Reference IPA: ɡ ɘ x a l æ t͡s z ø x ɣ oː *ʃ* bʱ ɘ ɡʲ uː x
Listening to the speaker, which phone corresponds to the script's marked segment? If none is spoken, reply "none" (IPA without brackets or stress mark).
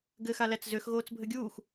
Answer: t͡s